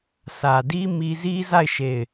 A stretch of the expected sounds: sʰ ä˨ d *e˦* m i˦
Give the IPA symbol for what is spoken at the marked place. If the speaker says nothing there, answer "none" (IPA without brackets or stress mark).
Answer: i˦